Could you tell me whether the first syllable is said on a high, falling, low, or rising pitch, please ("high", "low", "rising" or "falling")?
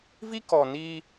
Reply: high